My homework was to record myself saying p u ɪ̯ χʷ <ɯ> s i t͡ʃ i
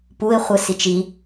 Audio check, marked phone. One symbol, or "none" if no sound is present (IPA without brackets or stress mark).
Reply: ɯ